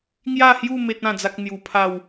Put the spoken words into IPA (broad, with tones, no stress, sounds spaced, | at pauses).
ŋ j a˥˧ h j u˥˧ m e˦ t̚ ã˥˧ d͡z a˦ k̚ n̪ j u˧ pʰ a˥˧ w